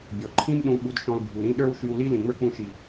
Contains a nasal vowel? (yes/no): yes